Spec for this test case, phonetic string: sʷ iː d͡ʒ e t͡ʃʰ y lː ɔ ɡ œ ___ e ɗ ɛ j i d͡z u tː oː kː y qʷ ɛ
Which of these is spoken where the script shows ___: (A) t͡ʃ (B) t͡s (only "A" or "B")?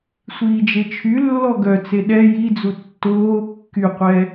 B